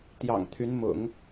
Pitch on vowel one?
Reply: low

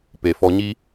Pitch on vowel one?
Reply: low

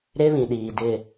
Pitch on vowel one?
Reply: high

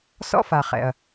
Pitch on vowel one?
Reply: high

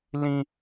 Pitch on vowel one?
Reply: high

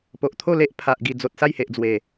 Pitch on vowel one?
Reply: low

